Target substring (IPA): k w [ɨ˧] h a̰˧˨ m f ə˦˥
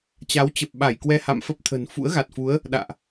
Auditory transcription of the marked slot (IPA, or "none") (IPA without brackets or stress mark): ɛ˧